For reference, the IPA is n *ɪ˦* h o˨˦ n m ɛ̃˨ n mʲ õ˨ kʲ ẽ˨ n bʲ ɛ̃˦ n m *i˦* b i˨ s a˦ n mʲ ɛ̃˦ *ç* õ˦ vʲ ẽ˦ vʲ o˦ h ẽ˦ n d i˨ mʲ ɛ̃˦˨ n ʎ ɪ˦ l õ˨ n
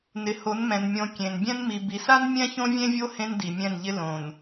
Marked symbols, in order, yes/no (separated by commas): no, no, yes